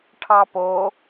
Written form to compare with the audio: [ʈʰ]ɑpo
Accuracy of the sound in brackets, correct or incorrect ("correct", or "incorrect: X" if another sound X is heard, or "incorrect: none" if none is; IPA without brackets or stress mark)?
correct